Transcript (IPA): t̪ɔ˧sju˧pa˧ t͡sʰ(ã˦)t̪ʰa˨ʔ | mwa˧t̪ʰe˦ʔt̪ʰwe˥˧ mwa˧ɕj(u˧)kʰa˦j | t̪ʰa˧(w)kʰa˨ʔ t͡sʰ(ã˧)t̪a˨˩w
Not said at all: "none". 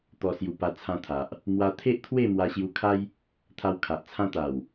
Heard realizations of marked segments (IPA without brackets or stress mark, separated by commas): ã˧, u˧, w, ã˧